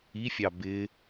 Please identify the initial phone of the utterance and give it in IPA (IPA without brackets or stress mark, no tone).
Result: i